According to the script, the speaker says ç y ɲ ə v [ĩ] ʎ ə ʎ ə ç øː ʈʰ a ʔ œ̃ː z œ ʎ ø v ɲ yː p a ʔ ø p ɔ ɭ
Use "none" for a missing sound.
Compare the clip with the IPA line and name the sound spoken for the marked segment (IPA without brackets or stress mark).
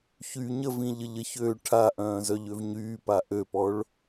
ĩ